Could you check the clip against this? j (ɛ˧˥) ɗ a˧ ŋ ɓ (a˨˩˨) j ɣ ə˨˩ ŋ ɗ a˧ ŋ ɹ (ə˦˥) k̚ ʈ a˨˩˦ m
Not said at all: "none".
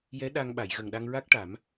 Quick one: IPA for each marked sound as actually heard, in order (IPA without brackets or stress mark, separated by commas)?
ɛ˧˥, a˨˩˨, a˦˥